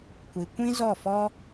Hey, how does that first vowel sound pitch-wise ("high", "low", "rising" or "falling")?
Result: low